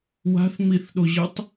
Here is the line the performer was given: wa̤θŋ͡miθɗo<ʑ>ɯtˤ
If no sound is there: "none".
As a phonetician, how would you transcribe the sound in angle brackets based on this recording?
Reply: ʑ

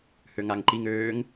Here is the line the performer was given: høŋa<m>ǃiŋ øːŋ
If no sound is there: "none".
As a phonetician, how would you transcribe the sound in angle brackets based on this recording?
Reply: ŋ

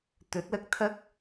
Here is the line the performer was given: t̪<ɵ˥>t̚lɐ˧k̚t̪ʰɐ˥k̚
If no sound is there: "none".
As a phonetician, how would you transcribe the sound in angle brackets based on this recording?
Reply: ɵ˨˥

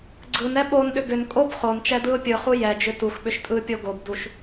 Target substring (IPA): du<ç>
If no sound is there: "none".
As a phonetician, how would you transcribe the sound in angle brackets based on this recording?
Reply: ʃ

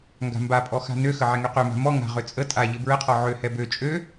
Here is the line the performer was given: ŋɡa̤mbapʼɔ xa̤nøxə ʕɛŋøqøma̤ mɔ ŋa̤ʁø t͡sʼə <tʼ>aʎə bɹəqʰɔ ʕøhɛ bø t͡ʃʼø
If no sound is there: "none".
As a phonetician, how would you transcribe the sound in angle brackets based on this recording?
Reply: tʼ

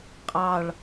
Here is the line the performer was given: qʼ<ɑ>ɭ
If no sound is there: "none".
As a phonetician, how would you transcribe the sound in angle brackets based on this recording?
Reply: ɑ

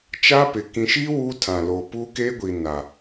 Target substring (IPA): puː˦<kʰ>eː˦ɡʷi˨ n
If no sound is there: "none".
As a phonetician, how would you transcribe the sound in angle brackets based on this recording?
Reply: k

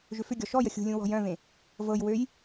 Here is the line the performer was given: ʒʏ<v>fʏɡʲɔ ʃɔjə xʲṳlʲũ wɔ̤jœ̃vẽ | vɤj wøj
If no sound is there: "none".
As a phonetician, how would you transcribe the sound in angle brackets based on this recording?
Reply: none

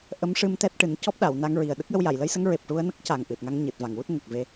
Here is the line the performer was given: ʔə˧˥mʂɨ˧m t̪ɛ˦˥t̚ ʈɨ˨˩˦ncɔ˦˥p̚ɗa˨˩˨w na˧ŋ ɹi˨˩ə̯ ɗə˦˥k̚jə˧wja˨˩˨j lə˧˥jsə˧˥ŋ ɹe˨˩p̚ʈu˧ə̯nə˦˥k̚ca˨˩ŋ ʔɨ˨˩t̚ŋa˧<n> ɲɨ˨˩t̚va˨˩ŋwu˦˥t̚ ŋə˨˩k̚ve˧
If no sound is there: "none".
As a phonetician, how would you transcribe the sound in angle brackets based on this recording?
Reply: ŋ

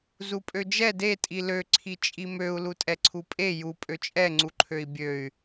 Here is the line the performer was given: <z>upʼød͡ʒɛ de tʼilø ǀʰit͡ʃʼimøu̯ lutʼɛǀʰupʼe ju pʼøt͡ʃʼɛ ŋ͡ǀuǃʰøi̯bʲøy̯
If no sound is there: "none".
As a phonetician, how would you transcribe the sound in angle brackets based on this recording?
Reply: z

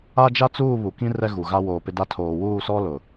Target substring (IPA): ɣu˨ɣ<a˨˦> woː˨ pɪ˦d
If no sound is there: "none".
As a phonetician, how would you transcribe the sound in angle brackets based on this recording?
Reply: a˦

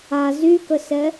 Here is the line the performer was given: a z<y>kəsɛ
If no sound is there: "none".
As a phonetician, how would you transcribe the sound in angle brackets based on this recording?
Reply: y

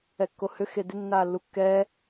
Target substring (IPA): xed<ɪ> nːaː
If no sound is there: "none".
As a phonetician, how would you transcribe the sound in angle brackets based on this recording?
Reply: ɪ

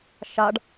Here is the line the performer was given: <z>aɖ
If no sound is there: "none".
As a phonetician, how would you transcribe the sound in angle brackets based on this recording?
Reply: ʃ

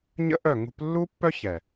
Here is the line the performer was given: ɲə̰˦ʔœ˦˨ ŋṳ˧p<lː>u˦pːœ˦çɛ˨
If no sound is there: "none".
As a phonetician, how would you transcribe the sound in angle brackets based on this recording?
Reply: lː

